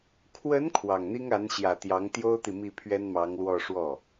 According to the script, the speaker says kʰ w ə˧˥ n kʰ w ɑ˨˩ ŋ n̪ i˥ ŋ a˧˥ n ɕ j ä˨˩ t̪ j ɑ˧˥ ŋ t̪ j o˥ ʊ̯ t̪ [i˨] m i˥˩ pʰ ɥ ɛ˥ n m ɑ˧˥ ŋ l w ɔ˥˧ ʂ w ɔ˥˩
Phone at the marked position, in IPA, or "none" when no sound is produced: i˨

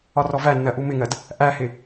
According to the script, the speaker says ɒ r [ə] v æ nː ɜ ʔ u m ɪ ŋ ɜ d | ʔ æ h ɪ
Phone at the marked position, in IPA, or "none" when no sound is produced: ɔ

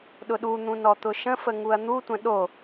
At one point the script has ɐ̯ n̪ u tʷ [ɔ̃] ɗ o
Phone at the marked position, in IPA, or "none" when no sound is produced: ə̃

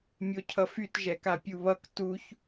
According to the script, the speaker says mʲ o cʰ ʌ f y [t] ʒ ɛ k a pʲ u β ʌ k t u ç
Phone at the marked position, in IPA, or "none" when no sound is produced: t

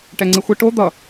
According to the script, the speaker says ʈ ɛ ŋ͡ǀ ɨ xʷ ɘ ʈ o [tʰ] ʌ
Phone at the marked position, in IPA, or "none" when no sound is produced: d̪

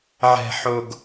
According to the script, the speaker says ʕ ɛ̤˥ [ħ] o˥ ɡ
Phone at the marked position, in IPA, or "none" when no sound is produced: ħ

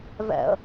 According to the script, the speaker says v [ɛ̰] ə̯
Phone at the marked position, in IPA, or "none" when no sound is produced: ɛ̰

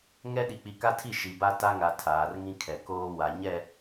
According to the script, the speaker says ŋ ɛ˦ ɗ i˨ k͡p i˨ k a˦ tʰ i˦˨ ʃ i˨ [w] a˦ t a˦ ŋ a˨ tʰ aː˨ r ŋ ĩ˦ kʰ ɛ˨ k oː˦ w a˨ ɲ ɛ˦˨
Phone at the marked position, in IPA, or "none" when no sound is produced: b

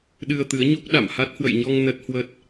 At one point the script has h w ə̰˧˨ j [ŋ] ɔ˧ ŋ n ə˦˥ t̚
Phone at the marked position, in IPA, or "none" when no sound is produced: ɲ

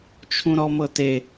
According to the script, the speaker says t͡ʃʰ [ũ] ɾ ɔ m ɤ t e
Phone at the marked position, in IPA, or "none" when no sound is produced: ũ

